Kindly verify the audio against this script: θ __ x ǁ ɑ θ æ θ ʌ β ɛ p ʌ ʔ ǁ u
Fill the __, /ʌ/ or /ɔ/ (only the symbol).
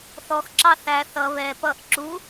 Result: ɔ